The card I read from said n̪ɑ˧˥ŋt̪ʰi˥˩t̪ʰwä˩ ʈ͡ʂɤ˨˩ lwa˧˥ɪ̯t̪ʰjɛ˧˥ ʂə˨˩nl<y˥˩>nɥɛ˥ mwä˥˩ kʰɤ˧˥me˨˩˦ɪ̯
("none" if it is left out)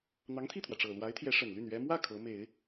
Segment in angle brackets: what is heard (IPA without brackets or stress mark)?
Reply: y˥˩